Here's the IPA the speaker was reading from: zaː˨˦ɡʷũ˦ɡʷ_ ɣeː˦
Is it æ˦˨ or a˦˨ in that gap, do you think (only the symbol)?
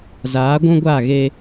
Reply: a˦˨